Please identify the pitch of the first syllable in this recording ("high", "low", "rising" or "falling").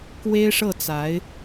high